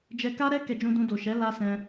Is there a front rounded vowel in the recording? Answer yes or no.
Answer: no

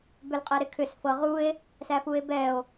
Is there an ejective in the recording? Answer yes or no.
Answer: yes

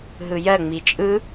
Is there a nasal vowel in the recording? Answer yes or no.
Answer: no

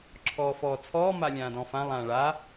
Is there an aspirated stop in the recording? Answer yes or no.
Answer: yes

